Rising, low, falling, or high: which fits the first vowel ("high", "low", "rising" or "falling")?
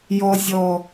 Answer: low